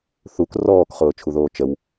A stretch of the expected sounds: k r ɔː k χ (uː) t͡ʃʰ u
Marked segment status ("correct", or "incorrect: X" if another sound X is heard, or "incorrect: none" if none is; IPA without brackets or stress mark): incorrect: ʊː